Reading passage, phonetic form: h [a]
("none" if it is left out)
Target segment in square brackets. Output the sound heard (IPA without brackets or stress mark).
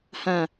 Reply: ã